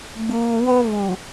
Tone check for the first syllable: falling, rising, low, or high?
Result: low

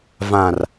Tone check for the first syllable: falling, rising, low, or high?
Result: low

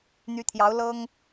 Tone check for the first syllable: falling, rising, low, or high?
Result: rising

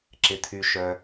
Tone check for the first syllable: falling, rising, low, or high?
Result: low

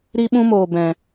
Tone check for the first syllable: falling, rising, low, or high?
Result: high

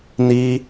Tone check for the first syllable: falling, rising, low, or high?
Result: high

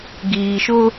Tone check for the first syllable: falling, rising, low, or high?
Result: low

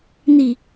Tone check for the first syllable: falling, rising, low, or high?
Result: low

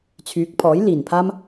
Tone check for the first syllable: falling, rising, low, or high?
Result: rising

